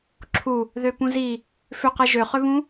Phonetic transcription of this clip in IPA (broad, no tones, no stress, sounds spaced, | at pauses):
ǁʰ u | ð ø p ũ z i | f ʏ q e ʒ ø χ ʏ β ũ